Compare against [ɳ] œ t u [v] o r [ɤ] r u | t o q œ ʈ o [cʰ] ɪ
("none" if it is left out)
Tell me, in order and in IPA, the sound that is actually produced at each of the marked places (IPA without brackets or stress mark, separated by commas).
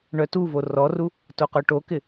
ɳ, v, ɔ, k